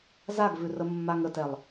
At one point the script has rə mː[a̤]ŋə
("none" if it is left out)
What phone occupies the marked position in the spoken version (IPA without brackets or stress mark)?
a